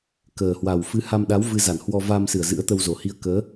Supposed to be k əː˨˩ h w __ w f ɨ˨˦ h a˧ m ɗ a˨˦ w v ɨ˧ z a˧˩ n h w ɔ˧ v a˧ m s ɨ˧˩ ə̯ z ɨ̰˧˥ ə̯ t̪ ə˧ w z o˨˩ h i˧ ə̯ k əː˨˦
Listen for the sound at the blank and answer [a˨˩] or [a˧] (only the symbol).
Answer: a˨˩